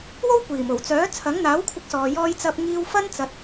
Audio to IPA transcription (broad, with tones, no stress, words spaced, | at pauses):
wo˥wkʷiː˨˩mo˨˩wt͡sœː˨˥ t͡sʰɐ˨˥ŋn̪aː˨˥wkʷʰɪ˧k̚sɔː˨ jɔː˧jt͡sɐ˧p̚ŋiː˧wfɐ˥n t͡sɐ˧t̚